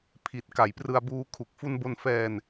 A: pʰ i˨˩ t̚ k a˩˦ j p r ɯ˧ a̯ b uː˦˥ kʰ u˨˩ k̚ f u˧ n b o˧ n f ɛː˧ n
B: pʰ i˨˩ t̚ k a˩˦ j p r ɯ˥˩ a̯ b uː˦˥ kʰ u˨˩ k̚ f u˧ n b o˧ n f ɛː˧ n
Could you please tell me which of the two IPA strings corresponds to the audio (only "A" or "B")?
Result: A